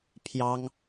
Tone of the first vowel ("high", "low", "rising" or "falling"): high